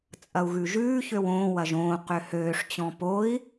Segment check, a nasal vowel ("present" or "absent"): present